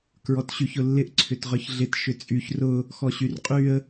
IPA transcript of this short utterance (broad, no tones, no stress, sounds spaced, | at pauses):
k ɹ ɔ t ɕ y ç ʊ lː ɪ ʔ ǀʰ ʏ t ʁ œ ç ɮ ɪ t ʃ ʏ t͡sʼ y ç r ʊ | x ɔ ɕ y r qʼ y ə̯